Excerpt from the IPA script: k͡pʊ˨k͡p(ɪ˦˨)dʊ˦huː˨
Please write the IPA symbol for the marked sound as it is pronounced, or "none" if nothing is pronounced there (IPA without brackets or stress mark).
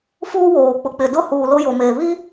ɪ˨